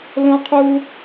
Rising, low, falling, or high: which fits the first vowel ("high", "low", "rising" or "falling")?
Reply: high